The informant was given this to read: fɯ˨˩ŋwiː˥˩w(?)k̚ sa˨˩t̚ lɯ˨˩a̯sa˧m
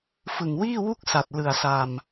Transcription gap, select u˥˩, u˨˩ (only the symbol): u˥˩